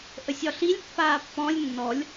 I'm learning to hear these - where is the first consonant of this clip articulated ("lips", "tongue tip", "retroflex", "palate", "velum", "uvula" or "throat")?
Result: throat